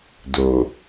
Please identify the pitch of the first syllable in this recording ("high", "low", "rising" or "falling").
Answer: low